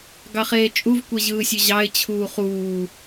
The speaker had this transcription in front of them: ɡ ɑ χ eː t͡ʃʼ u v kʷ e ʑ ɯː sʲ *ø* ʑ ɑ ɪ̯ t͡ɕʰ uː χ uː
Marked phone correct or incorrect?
correct